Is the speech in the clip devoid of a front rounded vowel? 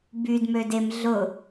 no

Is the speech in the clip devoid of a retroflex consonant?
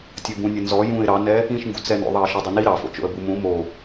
yes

